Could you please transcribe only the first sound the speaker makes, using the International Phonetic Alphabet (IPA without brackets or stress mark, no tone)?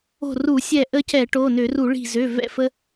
o̤